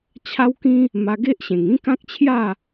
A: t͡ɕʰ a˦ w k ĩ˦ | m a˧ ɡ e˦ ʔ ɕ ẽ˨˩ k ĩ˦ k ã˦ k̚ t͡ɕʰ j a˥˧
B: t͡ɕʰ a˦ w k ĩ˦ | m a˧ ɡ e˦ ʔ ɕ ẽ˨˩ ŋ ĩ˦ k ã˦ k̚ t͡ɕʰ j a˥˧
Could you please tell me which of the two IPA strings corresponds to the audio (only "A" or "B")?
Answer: B